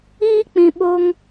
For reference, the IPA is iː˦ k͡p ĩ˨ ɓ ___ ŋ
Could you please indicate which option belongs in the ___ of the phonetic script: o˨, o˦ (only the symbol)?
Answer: o˦